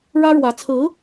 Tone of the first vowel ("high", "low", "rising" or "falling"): high